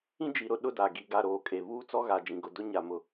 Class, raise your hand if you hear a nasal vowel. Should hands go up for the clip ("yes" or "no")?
yes